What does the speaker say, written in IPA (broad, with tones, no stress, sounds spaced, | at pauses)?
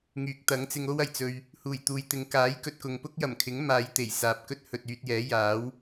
ŋ yː˨ k̚ t̪ ɐ˨˥ ŋ t͡s ɪ˧ ŋ o˥ w ɐ˨˩ j t͡s ɵ˧ ɥ | h uː˨˩ j t̪ uː˨ j t̪ ɪ˨ ŋ k aː˨˥ j k ɵ˨ t̚ k ʊ˨ ŋ p ʊ˥ k̚ j ɐ˨˩ m kʰ ɪ˨˥ ŋ m aː˨˧ j t̪ e˨˩ j s aː˨ p̚ k ɵ˥ t̚ h ɵ˨ t̚ yː˧ t̚ j ɛː˨˥ j aː˨˥ w